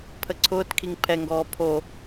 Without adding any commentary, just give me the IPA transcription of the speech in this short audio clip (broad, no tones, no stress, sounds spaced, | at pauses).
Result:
pʰ ə ǀʰ ʊː t kʰ i ŋ pʰ ɛ ŋ ɡ ɔː pʰ o